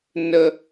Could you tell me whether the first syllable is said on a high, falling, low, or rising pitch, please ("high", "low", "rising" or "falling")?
low